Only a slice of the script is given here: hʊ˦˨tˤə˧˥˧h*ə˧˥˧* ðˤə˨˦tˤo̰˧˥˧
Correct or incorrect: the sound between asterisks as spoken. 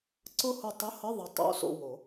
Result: correct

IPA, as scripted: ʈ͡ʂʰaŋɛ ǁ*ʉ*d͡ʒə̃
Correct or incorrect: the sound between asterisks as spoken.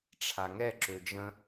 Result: incorrect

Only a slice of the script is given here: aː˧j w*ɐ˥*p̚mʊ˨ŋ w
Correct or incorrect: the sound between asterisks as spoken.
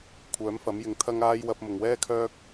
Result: incorrect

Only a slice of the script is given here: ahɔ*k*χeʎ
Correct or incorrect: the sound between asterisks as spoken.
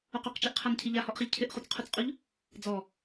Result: incorrect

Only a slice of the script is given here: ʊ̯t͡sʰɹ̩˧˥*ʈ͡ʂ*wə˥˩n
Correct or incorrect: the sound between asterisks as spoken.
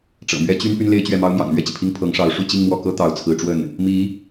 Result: correct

